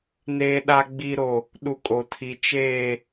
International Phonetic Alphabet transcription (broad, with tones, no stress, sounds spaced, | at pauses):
n eː˦ ɗ a˦ ɡ͡b i˦ ɾ o˦ | ɗ u˦ kʼ o˦ tʰ i˦ t͡ʃ eː˦